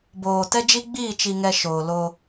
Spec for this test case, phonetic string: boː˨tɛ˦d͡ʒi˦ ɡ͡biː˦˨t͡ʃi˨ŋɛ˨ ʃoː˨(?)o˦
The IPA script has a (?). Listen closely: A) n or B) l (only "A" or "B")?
B